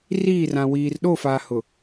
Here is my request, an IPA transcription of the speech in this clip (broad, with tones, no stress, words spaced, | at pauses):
riː˦˨rã˨ wiː˨r ɗo˦˨fa˨hʊ˨